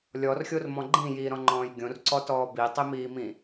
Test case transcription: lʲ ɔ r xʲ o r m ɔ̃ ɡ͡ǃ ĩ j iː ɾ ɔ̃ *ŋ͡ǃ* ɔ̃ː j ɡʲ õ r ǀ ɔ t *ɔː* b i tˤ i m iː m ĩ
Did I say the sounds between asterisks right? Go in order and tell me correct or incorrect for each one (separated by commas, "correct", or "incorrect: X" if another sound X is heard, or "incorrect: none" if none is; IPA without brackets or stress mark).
correct, correct